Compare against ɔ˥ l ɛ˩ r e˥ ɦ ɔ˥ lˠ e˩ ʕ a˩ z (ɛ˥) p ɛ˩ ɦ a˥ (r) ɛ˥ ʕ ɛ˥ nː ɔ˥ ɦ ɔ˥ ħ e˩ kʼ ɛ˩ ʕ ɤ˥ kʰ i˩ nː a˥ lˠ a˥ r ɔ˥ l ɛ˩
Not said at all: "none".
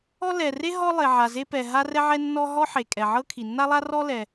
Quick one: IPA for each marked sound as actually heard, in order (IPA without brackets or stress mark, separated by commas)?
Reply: e˥, r